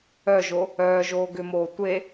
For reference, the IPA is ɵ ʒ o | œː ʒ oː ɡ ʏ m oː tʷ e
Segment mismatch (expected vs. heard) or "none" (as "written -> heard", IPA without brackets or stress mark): ɵ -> œ